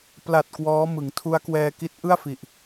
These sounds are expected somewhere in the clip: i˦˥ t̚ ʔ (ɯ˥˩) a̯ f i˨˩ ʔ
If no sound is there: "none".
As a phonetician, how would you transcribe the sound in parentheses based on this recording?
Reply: ɯ˥˩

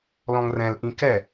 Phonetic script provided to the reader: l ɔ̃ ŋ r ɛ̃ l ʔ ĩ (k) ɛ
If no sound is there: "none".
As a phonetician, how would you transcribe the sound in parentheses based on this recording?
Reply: k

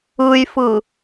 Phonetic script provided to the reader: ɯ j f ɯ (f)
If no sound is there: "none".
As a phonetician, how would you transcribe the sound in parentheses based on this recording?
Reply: none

